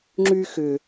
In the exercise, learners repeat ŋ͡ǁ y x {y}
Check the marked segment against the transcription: incorrect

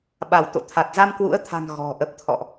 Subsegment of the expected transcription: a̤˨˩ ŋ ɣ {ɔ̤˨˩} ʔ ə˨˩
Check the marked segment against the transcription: correct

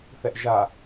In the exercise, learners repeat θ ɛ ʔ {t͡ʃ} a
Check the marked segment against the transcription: incorrect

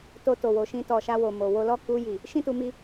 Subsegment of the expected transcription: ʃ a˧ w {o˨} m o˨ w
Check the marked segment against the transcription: correct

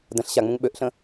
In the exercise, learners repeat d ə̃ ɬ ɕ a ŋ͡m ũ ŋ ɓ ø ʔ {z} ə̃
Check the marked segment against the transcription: incorrect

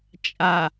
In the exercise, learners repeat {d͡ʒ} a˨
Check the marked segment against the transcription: incorrect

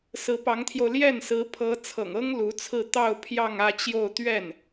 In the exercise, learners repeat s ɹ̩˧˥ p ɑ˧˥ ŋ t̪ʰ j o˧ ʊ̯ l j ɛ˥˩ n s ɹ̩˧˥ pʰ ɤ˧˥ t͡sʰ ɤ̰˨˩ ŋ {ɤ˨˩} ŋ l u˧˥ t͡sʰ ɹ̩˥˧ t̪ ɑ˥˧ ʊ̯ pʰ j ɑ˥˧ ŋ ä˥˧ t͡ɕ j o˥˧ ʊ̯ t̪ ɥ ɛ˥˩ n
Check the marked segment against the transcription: incorrect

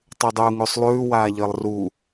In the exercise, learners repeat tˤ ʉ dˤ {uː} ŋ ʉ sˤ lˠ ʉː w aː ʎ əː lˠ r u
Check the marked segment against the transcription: correct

